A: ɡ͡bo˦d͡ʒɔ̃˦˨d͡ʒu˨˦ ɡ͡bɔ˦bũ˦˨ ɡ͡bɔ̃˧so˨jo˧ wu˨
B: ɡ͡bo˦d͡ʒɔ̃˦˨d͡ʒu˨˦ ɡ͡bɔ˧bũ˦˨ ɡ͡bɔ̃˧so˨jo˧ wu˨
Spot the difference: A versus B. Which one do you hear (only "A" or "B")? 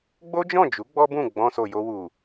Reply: A